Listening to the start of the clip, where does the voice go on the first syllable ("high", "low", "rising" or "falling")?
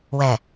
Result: low